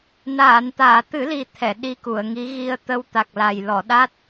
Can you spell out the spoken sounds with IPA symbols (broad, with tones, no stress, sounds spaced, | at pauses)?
n aː˨˩˨ n t̪ aː˨˩˨ t̪ ɨ˨˩˦ l i˨˩ t̪ʰ ɛ˨˩˨ ɗ i˧ k u˨˩˨ ə̯ ŋ i˧˥ ɣ i˧ ə̯ t̪ ə˧ w t̪ a˨˩ k̚ l a˨˩ j l ɔ˨˩˨ ɗ a˦˥ t̚